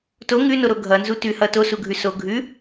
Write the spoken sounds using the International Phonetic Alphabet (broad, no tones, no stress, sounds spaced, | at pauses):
t o ŋ ʉ n o ɾ o ɡʱ ʌ n z u t ʉ h ʌ t o s u ɡʱ ʉ s o ɡʱ ʉ